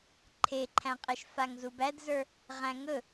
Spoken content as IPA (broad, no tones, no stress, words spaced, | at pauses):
ǃʰeǃʰæ̃qʼɛʃ faŋzubædzə˞ | ʁæ̃ŋɵ